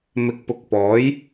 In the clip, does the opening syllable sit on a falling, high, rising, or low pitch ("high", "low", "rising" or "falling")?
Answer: low